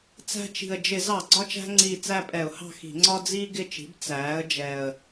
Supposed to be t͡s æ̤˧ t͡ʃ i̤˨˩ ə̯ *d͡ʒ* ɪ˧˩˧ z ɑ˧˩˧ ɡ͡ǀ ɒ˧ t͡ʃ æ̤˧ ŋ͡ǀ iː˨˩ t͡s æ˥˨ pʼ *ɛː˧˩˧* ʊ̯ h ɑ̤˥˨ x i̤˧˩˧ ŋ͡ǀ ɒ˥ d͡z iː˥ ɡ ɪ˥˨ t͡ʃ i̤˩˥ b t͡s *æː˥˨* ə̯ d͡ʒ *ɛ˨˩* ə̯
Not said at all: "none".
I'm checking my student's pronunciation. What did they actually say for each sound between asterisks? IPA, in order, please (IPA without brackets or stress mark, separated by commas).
d͡ʒ, ɛ˧˩˧, æː˩˥, ɛ˨˩